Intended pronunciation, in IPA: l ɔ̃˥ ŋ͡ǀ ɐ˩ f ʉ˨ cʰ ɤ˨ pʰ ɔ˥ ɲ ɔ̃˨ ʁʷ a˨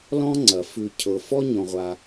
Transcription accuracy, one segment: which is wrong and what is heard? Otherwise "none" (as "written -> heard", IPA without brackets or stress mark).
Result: pʰ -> f